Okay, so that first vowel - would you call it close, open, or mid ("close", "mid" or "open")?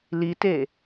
close